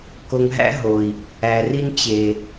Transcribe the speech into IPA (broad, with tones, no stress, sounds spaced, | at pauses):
k o˧ ŋ ɦ æ̰˦ ɦ o˨ i̯ | æ˨ r i˧ n t͡ɕ e˨